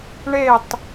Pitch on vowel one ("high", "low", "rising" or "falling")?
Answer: falling